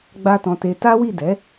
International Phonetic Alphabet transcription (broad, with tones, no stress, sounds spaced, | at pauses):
ɡ͡b a˦ t ɔ̃˧ t e˧ t a˦ w i˦˨ d ɛ˨˦